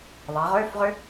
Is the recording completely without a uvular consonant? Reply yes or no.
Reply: no